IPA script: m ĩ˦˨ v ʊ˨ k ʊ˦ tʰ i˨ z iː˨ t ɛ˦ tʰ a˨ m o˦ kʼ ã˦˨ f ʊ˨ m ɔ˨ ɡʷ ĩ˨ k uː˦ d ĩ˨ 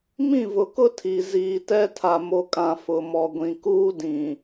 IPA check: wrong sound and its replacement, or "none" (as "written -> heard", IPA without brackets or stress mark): none